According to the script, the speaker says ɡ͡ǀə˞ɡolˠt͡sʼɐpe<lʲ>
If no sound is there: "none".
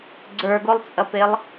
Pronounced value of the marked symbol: lˠ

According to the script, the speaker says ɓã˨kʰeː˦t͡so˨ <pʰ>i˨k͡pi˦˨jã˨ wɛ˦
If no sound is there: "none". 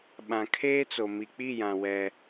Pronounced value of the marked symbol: m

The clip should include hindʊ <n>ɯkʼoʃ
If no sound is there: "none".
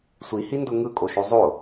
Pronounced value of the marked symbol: ŋ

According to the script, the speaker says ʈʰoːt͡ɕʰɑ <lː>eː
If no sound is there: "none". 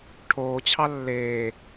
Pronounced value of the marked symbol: lː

